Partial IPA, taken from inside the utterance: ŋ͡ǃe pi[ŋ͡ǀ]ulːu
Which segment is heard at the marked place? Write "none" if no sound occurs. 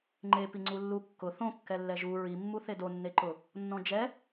ŋ͡ǀ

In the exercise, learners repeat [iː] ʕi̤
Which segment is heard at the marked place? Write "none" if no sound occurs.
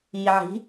iː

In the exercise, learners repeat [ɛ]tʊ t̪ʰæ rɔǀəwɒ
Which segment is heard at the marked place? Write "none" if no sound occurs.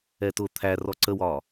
ɛ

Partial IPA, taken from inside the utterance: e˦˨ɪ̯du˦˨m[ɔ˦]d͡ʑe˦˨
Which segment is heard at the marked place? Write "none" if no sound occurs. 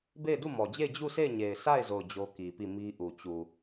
ɔ˨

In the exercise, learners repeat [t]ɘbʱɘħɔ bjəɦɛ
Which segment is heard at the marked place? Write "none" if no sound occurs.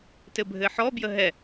t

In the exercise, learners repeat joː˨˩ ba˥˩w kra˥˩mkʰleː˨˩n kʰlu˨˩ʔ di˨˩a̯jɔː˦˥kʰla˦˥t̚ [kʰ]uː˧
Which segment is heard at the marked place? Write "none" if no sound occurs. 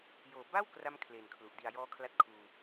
kʰ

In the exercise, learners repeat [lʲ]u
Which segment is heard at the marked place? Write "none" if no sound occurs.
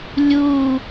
lʲ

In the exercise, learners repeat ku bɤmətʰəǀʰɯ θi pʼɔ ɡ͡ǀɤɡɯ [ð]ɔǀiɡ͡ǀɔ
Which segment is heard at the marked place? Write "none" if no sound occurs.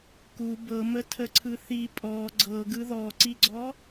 ð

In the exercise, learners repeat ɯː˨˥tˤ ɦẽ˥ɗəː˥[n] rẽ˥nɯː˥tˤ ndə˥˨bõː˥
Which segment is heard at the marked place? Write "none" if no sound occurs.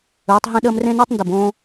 m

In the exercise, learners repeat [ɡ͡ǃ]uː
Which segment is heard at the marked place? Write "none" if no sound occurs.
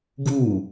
ɡ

